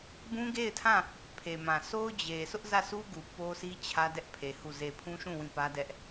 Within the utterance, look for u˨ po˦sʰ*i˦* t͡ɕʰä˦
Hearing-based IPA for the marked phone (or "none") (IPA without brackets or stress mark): i˦